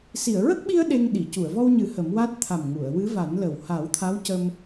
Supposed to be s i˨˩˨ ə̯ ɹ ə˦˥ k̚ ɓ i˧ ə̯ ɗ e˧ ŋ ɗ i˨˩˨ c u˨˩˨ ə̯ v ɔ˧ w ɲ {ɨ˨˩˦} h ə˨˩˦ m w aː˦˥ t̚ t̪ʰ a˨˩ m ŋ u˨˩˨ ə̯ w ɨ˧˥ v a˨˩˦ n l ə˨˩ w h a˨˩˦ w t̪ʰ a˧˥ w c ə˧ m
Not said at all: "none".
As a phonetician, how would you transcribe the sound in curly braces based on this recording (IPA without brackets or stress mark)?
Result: ɨ˨˩˦